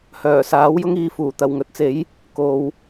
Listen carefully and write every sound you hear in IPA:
hœː˨˩saː˨˥wjʊ˥ŋiː˧ fuː˨˩ t̪ɐ˨˩wŋɵ˨t̚t͡se˨˥j | ko˨˧w

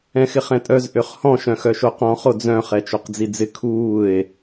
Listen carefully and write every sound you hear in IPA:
ɛ̃xɪχɛ̃tʼœz ʔøχhɔ̃ ʃœ̃xœʃoqɔ̃ χod͡zœ̃ χɛt͡ʃoqd͡zid͡zɪ kʰuːe̯

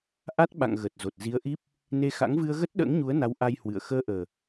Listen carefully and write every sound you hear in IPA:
ʔa˦˥t̚ɓa̰˧˨ŋ ɣəː˨˩t̚zo˨˩t̚zi˨˦ə̯ʔi˦˥p̚ | ne˧xa̰˧˥ŋ vɨ˧ə̯ɣə˦˥t̚ɗə̰ː˧˥ŋɲu˨˦ə̯ na˨˦wʔa˧jhwɨ̰˧˨ə̯ xəː˧ʔəː˨˩

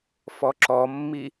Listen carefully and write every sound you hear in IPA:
fɔǁɔmːi

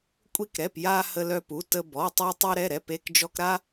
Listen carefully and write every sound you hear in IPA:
kʷʼi˧kɾɛ˩˧˩p ja˧ hə˧lœ˧pu˩˧˩tə˧ bɔ˩˧˩tˤe˧ tˤy˧ɾɛ˩˧˩ ɾɛ˩˧˩pe˩˧˩kd͡ʒɔ˧k ɾa˧

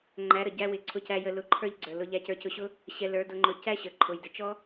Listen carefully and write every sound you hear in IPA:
ŋ͡ǃæ˨˦ɾə˨ ɟæ˧wɪ˨ ǀʰʊ˧cæ˧jə˧ lʊ˧ ǃʰə˞˦ʎɡ͡ǀə˞˨lʊ˧ ʎæ˧cə˞˧cʊ˧ɕʊ˦ | ɕɛ˧lə˞˨˦dʊ˧ŋ͡ǃʊ˧ cæ˦ɕə˨ ǃʰʊ˨jdɪ˨t͡ʃɔ˦

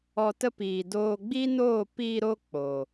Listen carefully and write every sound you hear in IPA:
ɔ˧tə˦ piː˧ doː˧ɡ͡bi˦noː˦˨ piː˧ɾo˧ k͡po˨

